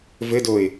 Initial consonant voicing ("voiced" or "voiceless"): voiced